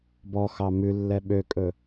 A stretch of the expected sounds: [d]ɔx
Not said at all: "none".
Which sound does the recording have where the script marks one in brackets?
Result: b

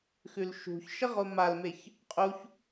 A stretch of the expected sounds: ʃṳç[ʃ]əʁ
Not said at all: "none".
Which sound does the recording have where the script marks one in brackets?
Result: ʃ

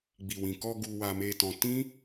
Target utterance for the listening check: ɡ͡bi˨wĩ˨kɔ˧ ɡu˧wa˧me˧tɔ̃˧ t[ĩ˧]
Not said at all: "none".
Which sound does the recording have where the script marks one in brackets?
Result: ĩ˦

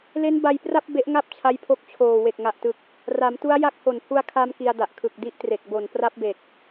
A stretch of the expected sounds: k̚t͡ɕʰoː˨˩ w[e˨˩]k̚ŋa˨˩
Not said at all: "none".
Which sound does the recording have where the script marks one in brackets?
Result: e˨˩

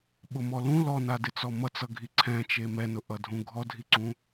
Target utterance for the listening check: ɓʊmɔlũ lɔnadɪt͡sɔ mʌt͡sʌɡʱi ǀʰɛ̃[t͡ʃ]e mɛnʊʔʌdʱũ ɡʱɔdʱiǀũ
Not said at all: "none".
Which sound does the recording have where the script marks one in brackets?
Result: t͡ʃ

